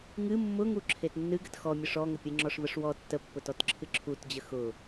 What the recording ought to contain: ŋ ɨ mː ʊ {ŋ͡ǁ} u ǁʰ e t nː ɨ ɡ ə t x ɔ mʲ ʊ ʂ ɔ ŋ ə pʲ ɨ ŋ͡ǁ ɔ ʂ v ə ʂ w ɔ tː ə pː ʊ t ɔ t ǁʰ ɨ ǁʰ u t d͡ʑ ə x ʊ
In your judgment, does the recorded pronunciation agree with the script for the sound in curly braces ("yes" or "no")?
no